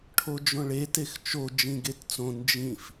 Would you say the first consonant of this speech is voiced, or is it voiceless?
voiceless